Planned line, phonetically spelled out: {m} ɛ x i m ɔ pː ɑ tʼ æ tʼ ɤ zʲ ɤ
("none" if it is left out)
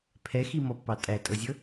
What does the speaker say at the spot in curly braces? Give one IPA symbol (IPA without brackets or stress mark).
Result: pʰ